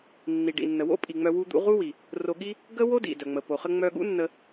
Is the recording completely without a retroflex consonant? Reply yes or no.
no